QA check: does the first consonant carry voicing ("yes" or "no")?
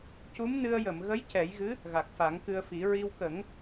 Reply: no